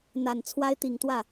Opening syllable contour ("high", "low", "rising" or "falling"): low